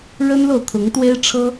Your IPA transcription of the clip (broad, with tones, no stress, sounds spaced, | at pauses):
ɻ ə˥ n l o˨ ʊ̯ t̪ʰ ʊ˧˥ ŋ t̪ w e˥ ɪ̯ ʈ͡ʂʰ ɤ˥